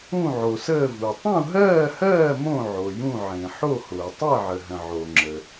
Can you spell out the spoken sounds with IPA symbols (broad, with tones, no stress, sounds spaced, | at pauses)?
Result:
ũ˥˧ ʕ o˨ s əː˥˧ v u˨ tˤ ũ˥˧ ɦ ɜː˥˧ h ɜː˥˧ m õ˥˧ ʕ o˨ j ũ˥˧ ʕ ẽ˨ ħ o˥˧ h ʊː˨ tˤ ɜ˥˧ ʕ ə˨ ɦ ə̃˨ ʕ o˨ ŋ͡ǁ ə˨